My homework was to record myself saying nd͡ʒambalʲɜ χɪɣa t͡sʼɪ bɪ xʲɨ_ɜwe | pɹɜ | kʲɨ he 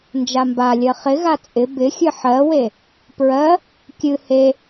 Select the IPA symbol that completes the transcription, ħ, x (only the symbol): ħ